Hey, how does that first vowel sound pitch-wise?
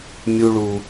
high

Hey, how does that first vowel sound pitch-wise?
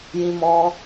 high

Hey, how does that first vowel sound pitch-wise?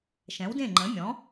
rising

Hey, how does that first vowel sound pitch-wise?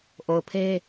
low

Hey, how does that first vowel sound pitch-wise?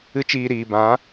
high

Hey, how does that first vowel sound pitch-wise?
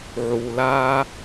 low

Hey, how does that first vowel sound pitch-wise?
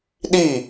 falling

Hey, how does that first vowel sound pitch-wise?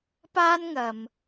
high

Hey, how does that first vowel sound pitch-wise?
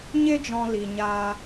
high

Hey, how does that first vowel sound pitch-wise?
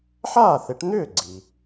falling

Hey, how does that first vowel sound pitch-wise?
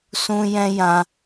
high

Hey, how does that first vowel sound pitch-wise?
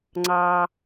low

